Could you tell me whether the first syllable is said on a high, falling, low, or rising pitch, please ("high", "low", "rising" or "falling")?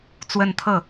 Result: falling